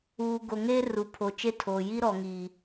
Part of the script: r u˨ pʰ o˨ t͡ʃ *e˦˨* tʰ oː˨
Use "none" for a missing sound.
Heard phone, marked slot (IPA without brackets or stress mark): e˦